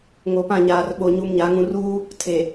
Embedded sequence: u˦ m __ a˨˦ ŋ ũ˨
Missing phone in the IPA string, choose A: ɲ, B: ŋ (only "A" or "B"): A